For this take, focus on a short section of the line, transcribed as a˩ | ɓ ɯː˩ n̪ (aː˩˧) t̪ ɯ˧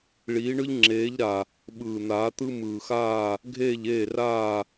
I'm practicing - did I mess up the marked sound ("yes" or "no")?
no